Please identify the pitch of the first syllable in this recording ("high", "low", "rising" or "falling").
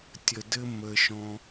low